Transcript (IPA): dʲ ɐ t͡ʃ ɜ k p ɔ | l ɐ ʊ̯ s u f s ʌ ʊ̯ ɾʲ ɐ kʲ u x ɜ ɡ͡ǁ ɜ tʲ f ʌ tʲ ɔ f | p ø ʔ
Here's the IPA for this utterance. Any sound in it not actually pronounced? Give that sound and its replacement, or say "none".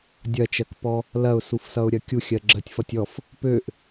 x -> xʲ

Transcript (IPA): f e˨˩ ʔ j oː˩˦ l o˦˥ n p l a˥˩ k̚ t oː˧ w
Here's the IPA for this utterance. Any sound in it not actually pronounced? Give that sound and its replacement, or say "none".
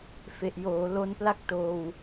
none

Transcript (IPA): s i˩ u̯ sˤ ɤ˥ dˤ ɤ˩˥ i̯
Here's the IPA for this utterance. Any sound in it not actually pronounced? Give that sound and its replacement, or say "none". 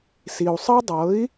none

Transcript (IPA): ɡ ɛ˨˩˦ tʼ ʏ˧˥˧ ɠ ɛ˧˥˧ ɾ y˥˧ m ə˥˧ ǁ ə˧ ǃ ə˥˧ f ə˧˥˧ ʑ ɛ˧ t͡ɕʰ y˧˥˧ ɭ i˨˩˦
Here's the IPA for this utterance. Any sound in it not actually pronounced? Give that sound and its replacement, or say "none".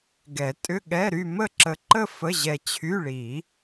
none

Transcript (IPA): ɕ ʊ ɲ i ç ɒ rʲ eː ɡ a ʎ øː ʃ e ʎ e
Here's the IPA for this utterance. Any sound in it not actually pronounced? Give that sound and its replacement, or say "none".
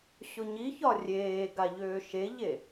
none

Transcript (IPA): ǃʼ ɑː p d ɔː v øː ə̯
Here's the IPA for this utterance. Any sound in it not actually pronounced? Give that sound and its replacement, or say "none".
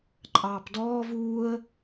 øː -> uː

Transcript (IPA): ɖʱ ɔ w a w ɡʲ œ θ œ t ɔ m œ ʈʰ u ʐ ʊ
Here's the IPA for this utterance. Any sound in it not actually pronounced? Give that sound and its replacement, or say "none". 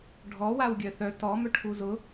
ʐ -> z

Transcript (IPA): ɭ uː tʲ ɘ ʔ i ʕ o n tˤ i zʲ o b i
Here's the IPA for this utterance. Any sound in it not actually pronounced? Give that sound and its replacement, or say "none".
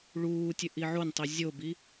none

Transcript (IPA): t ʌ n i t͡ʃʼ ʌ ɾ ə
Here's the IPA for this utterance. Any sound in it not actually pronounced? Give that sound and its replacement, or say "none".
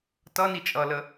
ɾ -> l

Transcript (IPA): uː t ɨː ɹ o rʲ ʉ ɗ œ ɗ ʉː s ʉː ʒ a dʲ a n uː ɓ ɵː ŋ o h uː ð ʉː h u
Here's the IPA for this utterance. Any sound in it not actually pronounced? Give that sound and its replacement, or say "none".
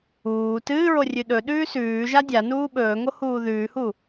œ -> ɵ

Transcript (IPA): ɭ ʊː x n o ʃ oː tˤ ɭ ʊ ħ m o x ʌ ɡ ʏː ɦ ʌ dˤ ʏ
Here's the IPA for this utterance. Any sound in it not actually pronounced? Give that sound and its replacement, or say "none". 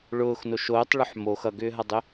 none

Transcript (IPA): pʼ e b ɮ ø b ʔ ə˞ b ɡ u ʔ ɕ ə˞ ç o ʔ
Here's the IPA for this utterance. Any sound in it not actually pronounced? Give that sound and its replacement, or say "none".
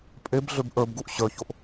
none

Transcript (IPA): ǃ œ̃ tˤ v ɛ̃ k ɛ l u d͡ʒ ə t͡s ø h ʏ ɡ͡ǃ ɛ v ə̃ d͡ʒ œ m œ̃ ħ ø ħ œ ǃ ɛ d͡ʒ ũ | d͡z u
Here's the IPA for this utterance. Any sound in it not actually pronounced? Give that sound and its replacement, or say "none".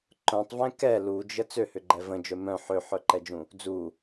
none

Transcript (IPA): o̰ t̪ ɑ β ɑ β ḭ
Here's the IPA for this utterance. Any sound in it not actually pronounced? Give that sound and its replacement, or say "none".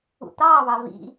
o̰ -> ṵ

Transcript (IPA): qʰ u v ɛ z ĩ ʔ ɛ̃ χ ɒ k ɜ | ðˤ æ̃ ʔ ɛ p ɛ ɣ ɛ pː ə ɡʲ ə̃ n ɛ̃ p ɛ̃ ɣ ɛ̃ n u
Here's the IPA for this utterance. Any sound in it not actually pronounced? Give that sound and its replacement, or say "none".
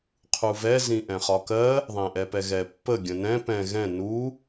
none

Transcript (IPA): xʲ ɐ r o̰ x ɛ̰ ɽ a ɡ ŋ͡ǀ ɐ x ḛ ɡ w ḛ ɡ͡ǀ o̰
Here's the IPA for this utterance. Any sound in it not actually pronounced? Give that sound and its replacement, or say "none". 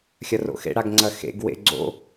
ɛ̰ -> ḛ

